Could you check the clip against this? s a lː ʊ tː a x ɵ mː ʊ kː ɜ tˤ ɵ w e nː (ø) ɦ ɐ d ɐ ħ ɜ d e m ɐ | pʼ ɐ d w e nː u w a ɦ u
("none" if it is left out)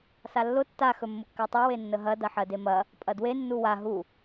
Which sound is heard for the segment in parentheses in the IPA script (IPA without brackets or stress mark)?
ə